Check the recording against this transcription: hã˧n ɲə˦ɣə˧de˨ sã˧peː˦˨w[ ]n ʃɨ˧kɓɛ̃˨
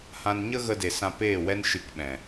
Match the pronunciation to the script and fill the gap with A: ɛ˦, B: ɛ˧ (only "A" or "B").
A